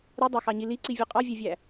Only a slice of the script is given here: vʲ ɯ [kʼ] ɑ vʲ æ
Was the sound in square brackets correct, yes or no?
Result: no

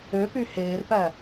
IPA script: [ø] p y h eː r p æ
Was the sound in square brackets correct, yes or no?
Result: yes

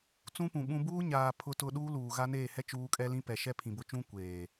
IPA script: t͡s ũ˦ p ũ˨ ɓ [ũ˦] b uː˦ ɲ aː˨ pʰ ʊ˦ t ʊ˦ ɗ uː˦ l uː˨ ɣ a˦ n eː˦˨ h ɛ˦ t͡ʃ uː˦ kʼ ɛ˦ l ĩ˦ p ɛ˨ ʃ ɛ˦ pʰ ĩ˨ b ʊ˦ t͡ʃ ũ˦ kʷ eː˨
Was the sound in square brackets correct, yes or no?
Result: yes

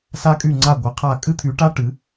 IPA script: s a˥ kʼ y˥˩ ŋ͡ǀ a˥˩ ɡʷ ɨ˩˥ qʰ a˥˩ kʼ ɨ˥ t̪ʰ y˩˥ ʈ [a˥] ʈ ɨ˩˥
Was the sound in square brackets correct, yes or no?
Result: yes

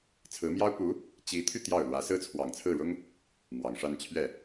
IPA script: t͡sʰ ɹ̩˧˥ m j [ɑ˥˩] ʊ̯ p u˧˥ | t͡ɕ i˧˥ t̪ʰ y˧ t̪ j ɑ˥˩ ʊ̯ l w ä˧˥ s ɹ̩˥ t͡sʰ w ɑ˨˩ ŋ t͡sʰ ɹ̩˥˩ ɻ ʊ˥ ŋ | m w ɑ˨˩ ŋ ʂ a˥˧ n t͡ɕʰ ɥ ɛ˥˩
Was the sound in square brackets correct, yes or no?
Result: no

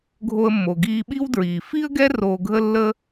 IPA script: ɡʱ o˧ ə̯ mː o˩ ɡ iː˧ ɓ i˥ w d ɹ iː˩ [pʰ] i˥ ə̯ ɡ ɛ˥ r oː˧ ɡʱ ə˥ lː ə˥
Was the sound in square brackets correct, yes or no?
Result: no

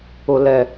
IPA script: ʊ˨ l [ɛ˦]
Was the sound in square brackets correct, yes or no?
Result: no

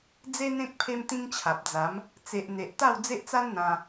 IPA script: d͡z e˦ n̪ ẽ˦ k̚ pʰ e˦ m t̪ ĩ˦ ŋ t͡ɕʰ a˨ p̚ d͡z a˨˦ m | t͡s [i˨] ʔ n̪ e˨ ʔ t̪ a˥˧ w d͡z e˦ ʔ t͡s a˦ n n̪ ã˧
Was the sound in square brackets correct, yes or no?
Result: no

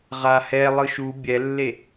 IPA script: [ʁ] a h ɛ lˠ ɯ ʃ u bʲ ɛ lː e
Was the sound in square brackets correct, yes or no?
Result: yes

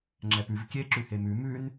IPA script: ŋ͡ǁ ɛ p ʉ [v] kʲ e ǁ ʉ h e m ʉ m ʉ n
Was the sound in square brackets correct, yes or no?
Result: yes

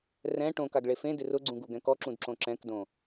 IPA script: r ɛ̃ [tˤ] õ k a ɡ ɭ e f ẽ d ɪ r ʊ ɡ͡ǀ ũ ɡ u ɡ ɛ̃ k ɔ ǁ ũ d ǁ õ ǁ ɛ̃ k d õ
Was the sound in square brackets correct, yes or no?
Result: no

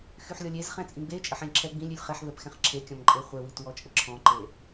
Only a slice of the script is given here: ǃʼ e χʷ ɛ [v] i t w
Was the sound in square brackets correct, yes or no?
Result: no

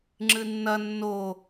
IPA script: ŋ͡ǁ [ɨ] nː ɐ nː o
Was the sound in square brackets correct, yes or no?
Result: yes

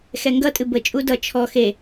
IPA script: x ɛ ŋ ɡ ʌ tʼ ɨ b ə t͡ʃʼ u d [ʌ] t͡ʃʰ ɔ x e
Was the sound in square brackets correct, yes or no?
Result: yes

